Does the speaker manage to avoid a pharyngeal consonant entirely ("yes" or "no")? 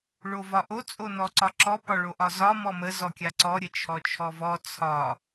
yes